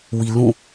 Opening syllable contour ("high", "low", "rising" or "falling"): low